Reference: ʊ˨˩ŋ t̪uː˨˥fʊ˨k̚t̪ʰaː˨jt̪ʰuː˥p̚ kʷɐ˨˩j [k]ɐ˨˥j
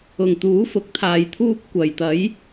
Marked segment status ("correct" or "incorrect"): incorrect